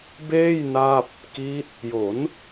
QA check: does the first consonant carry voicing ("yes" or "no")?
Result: yes